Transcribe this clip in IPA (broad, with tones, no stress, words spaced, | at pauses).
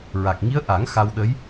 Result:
ɹa˨˩k̚ŋi˧˥ə̯ ʔa˨˩˦ŋ xa˧wɗə˧˥j